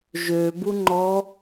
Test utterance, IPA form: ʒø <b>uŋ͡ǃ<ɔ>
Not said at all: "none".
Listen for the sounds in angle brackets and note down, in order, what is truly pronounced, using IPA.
b, ɔ

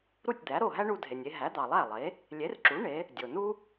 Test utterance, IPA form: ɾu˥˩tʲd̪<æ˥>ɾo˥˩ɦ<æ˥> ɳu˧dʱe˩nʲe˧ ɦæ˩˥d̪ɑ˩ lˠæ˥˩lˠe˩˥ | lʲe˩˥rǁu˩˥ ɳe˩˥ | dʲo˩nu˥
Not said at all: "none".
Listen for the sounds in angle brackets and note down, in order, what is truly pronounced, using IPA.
æ˩˥, æ˥

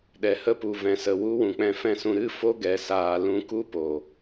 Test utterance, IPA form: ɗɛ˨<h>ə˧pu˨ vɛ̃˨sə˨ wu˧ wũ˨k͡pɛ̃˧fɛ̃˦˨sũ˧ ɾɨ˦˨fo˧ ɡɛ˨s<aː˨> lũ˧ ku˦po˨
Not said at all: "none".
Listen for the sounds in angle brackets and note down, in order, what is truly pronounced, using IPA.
h, aː˨

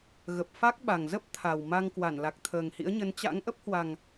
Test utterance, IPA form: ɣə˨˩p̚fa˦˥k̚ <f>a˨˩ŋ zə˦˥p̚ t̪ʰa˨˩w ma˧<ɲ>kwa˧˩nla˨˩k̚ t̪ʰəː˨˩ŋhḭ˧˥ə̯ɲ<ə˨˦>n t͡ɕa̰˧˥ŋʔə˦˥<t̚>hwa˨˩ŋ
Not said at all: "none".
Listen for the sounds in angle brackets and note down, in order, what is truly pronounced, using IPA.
ɓ, ŋ, ə˨˦, p̚

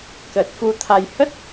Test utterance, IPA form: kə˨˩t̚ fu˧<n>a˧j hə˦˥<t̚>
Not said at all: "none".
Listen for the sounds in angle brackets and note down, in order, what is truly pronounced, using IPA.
t̪ʰ, t̚

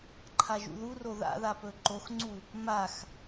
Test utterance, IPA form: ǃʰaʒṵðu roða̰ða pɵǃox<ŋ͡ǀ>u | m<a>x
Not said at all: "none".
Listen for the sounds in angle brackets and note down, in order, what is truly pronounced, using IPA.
ŋ͡ǀ, a

